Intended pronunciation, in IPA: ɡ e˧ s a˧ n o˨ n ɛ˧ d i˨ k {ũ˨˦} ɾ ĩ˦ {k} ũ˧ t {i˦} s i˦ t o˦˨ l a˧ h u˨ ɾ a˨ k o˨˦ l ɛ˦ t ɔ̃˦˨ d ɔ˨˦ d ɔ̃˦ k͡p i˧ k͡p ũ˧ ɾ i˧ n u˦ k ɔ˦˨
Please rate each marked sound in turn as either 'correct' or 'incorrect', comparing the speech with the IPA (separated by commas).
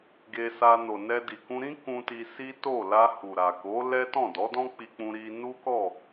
incorrect, correct, incorrect